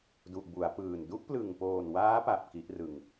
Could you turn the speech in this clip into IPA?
d u˨˩ ʔ b u˩˦ a̯ p ɯː˨˩ n d u˦˥ ʔ p l ɯ˨˩ ŋ p oː˨˩ n w aː˦˥ p a˨˩ p̚ k i˦˥ ʔ r ɯ˨˩ ŋ

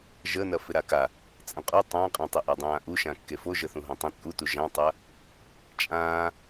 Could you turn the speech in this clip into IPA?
ʒ əː n ɐ f ɪ ɾ a k a | t͡sʼ ɐ̃ qʼ u tˤ ã qʼ ã tˤ ɪ ʔ a dˤ ãː ʔ u ʃ ã kː e f o ʒ ə θ ũ ɦ õ tˤ ə̃ t͡sʼ u t u ʒ ã tˤ ɐ | t͡ʃʼ ãː

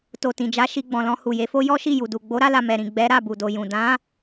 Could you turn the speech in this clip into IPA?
t o˨ t ĩ˨ d͡ʒ a˨˦ ʃ i˧ ɡ͡b ɔ̃˨ l ɔ̃˧ h u˨ j e˨˦ f o˦ j ɔ˦ ʃ i˦˨ j u˨ d u˨ ɡ͡b o˨˦ ɾ a˧ l a˨ m ɛ˨ ɾ ĩ˨ ɡ͡b ɛ˨˦ ɾ a˦˨ b u˨ d o˨ j ũ˨ d ã˨˦

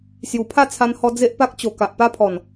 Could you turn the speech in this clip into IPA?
s j u˨˩ pʰ a˥˧ t͡sʰ a˧ n h ɔ˧ d͡z e˦ ʔ p a˦ k̚ t͡ɕ o˨˩ k a˨ ʔ p a˦ pʰ ɔ˨˩ n

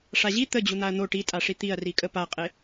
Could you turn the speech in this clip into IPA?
ʂ a ʑ i t̪ ə d͡ʑ u n̪ a ɐ̯ n̪ o ʈ i tʼ a ʂ i t̪ i ɐ̯ r i kʼ ə p a qʼ e

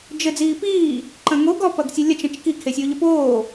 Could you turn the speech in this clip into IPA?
d͡ʒ ɘ d͡z iː p iː | ǃ ɐ̃ ŋ o ɡ ɔ p ɐ ɡ sʲ ɨ lʲ ɐ t͡ʃ ɐ̃ t͡ʃ k i kʰ e sʲ oː ʎ ɘ p oː

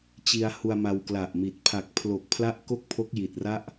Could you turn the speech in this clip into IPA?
t͡ɕ i˧ a̯ h u˧ a̯ m a˧ w k l a˨˩ ʔ m i˨˩ t̚ pʰ a˨˩ k̚ pʰ l o˨˩ k̚ pʰ l a˦˥ ʔ k o˥˩ k̚ pʰ o˦˥ k̚ j i˨˩ t̚ r a˥˩ ʔ

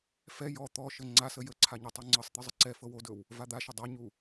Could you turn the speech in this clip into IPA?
f ɛ j ɔ t̪ ɔ ʃ ə ŋ͡ǀ a s ə j ə ǀʰ a ɲ ɛ tˤ u ŋ͡ǀ ɤ sˤ t̪ ɘ zˤ ə ǀ ɛ f ɤ w o d ɵ w | v a d̪ a ʃ ə dˤ a ɲ u

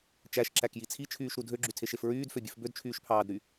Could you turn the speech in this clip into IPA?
t͡ʃ æ ʃ ǁ æ k j i t͡sʰ i t͡ʃʰ yː ʃ ɾ u dʱ ø ɡ͡ǁ y tʰ e ʃ e f ɹ yː d f ø bʲ ʉ f b ø d t͡ʃʰ yː ʃ pʰ ɑː d ɾ y

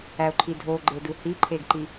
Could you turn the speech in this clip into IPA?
æ o̯ ǃʰ i dʱ o ɡ͡ǃ e d ɯ h i ǃʰ e ɡ ǃ i

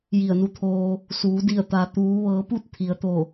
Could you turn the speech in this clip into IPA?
j i˧˩ ə̯ n u˧ t̪ʰ oː˧ | s uː˩˧ d i˧˩ ə̯ t̪ a˩ t̪ uː˩˧ ʋ ɤː˩˧ p u˥˨ t̚ t̪ʰ i˩ ə̯ t̪ o˧˩

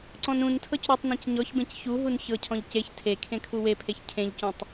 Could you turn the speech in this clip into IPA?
ǀ ɔ̃ n ũ n tʰ ɤ c ɾ u tˤ n ẽ c ɲ ɔ ç b ẽ c ç u ɦ u n ç ɤ cʰ ɔ̃ ʎ c e ç tʰ e kʰ ẽ kʰ u w e pʰ e ç cʰ ẽ ʎ c ũ tˤ

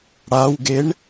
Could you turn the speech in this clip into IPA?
ɽ a w ɡ e ɳ

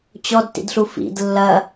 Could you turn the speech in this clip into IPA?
t͡ɕ ɔ d t ḭ d ɬ u f ḭ d lː ɐ

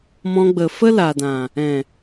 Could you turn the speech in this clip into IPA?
m ɔ̃˧ ɡ͡b ə˨ f ə˦ l a˨ d ã˨ | ɛ̃˨

